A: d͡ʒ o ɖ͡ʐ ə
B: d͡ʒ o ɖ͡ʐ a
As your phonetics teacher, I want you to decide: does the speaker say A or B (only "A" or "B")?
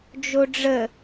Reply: A